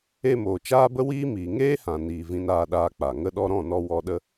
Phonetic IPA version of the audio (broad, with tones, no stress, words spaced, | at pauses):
e˧moː˨ t͡ʃaː˦bə˦ wiː˦miː˨ ŋeː˦hã˨ niː˨vĩ˧n aː˧ɗaː˧k͡pa˨ ŋə˧ɗɔ˧ɾɔ̃˦˨nɔ˧ wɔ˧ɗə˦